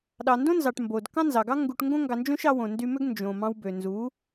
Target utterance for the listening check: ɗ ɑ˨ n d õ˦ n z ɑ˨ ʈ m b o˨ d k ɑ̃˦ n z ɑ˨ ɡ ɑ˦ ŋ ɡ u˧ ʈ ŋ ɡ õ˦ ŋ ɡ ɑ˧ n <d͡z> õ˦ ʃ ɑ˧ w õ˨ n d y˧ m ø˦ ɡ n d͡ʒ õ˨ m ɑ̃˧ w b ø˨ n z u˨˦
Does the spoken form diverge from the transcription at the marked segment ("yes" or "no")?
yes